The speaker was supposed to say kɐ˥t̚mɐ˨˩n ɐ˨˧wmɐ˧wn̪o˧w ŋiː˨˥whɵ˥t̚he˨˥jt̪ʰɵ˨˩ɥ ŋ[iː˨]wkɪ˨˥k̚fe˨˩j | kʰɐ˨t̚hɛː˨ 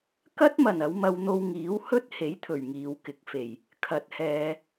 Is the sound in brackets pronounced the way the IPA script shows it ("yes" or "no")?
yes